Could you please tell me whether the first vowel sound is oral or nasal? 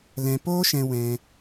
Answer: nasal